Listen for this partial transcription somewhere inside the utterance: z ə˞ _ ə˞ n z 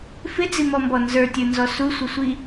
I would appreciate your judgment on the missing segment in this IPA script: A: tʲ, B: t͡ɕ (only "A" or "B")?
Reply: A